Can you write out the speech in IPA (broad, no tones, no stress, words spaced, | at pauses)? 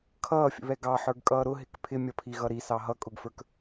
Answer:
kʰʌːfʲə̰βɛ ɡɑħə˞ɡkʼʌː ɾʊɦɪk pʰɪmʲʌpʰiɣʌ ɾisɑ ɦʌkʼʊɡfə˞k